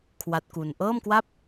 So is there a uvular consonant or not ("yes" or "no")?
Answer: no